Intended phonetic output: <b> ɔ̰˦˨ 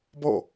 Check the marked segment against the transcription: correct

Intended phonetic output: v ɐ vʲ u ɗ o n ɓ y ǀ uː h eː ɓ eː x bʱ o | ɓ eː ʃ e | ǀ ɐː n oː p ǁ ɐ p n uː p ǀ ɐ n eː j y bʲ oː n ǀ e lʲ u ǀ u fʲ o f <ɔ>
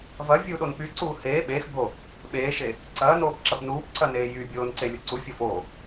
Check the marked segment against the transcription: incorrect: o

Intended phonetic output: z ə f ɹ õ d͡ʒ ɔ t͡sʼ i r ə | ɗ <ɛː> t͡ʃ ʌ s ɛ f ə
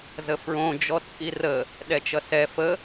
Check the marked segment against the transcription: incorrect: ɛ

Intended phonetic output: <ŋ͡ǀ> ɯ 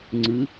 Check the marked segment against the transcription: correct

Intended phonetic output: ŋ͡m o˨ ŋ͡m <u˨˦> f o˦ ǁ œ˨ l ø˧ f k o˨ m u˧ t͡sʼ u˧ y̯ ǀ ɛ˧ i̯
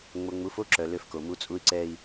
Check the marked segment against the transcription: correct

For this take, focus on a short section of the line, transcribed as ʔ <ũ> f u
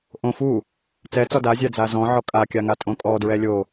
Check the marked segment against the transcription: incorrect: õ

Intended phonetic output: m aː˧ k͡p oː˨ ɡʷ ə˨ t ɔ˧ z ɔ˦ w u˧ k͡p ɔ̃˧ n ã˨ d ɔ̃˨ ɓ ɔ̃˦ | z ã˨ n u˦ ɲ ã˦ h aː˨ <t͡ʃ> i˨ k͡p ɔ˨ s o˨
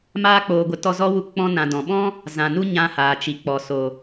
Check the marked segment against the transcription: correct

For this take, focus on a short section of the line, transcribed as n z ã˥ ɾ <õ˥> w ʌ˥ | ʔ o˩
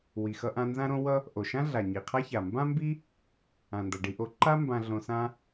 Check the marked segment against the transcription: correct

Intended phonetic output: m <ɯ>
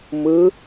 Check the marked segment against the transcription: correct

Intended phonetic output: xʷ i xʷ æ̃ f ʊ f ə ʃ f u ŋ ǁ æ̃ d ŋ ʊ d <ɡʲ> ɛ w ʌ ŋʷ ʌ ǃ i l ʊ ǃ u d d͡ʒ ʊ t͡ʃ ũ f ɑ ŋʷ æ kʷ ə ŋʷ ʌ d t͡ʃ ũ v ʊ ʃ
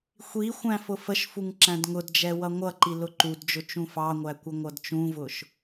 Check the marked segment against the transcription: incorrect: d͡ʒ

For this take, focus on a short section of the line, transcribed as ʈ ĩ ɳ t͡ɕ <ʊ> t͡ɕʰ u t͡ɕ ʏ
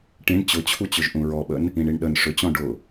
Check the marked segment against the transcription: correct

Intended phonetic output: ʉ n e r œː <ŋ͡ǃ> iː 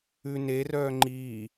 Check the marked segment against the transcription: correct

